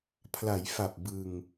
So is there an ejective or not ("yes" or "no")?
no